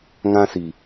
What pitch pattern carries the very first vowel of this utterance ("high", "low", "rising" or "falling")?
high